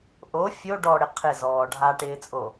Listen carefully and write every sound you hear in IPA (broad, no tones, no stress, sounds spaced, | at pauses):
ʔ o fʲ o ɖ ɔ ɽ ɪ qʰ ɪ z ɔː ɖʱ a ʈ ɪː t͡sʼ o